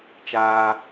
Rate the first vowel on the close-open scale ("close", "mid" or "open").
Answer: open